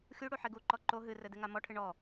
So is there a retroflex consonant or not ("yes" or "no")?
yes